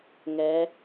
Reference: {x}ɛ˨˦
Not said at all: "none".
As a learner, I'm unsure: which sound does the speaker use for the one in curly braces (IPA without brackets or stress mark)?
ŋ